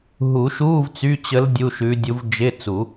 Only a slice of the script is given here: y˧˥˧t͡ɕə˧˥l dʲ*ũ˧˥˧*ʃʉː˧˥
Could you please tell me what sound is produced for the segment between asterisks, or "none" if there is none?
u˧˥˧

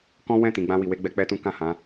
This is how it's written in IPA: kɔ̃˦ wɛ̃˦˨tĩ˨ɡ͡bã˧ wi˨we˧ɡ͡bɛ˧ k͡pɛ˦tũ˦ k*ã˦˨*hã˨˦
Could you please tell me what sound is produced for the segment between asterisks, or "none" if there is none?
ã˦˨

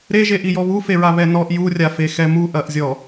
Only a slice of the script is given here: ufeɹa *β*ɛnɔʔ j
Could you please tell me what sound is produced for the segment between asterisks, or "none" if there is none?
β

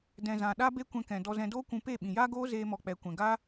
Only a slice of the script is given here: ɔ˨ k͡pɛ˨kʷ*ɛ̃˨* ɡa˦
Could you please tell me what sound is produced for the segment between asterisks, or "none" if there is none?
ɛ̃˨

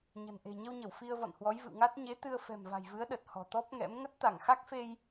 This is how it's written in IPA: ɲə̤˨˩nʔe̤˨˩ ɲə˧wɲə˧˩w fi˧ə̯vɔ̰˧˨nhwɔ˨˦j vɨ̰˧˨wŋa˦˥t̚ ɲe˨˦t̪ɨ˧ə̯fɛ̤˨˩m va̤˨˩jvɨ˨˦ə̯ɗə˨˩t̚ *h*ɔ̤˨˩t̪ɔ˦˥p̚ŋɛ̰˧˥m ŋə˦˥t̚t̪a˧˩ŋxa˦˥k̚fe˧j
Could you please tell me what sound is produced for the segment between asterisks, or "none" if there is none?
h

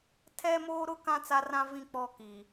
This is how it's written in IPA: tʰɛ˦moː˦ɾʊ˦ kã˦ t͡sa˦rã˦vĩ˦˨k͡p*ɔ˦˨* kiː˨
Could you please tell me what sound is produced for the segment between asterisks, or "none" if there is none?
ɔ˦˨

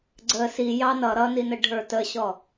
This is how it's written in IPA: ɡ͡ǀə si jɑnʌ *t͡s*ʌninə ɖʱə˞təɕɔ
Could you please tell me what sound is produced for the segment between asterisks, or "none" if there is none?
ɾ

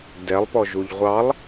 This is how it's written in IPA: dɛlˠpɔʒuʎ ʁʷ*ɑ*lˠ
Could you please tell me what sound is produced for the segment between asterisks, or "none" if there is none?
ɑ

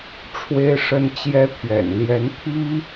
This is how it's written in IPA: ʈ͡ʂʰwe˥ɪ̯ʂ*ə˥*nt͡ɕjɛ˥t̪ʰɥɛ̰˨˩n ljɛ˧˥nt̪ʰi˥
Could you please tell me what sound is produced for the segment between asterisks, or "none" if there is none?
ə˥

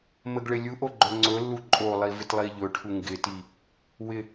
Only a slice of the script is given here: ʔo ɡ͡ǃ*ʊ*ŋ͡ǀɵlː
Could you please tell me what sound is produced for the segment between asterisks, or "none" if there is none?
ɵ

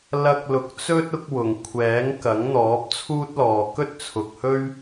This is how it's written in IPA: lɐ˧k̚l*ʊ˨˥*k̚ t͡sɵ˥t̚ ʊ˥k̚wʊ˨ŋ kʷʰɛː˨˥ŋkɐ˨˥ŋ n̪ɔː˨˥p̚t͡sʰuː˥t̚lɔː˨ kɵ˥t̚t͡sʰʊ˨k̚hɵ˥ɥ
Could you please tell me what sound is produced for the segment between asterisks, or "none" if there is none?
ʊ˨˥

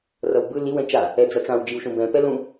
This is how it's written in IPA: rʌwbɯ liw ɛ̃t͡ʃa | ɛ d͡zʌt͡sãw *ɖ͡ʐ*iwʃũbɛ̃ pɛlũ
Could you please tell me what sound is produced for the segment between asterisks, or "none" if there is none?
d͡ʒ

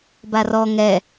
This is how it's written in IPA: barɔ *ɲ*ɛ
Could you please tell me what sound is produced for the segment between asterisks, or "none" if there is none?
ŋ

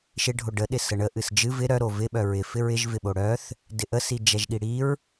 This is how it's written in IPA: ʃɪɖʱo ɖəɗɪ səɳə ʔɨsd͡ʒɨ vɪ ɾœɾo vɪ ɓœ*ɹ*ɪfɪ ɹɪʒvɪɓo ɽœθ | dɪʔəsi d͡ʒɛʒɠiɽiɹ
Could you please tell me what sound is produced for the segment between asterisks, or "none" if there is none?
ɹ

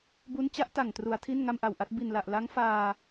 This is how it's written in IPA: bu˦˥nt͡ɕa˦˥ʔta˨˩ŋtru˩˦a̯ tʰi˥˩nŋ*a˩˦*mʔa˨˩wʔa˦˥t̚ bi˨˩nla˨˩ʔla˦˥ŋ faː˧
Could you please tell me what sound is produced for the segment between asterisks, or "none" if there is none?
a˥˩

